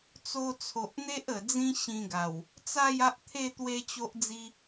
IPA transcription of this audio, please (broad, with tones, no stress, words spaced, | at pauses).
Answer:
t͡so˧t͡sʰo˨ʔ n̪e˦ʔə˨˩ d͡zĩ˦ɕĩ˧ɡa˨˩w | t͡sa˥˧ja˦ʔt̪ʰe˥˧ t̪we˦t͡ɕo˦ʔd͡zi˦